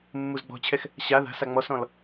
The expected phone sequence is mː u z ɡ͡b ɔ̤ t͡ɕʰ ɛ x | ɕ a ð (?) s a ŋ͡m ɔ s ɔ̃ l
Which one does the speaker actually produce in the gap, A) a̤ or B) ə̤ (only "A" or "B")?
A